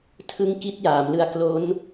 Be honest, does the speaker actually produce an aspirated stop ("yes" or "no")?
yes